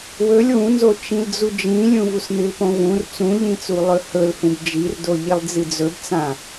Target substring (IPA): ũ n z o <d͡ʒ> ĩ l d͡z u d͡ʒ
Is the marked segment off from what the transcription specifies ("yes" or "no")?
yes